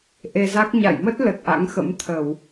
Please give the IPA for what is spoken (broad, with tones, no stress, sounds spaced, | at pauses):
ʔ e˧ z a˦˥ k̚ ɲ a̰˧˨ j m ə˦˥ t̚ l ə˨˩ t̚ ʔ a̰˧˥ ŋ x ə̰˧˥ m t̪ʰ ə˧˩˨ w